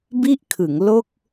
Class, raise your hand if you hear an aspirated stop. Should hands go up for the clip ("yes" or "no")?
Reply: yes